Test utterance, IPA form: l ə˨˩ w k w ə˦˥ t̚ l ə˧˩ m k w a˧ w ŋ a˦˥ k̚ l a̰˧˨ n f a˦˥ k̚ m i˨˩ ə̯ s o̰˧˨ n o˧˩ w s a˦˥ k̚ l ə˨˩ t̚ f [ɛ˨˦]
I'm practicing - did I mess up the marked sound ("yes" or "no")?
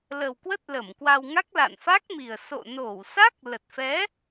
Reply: no